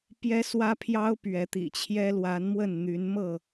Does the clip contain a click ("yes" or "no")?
no